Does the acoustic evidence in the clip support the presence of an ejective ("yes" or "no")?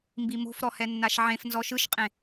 yes